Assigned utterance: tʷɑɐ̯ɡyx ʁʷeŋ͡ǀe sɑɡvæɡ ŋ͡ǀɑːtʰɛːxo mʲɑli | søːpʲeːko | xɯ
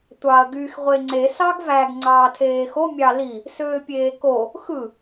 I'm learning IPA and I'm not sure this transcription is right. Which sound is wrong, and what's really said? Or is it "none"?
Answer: ɛː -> eː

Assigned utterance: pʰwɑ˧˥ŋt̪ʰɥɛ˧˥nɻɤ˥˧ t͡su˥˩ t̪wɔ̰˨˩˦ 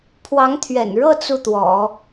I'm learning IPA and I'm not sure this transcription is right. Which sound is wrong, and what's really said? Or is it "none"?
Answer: ɛ˧˥ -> ɛ̰˨˩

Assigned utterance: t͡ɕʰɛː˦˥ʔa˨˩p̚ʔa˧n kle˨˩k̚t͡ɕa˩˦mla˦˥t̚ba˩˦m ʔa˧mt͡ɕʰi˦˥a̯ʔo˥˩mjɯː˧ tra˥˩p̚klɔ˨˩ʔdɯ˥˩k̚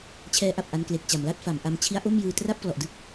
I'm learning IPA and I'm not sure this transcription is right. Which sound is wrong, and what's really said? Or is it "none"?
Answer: b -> f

